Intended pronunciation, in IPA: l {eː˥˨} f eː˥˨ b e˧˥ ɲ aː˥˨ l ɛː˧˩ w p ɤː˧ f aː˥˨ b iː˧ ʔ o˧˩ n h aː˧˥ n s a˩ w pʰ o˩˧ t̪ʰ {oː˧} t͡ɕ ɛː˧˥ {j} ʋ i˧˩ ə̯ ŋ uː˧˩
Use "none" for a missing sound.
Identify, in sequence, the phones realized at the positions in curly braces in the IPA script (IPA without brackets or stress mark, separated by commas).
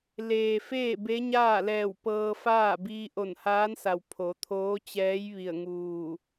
eː˩, oː˧˥, j